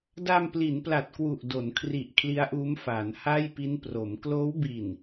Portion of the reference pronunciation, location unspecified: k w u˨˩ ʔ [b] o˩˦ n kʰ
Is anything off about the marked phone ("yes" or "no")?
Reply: yes